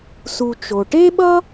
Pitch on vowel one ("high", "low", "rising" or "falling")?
low